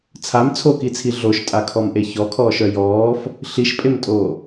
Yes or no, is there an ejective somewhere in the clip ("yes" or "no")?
yes